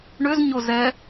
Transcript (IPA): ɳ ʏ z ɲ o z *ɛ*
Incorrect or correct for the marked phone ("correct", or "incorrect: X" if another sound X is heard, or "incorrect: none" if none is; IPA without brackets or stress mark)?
correct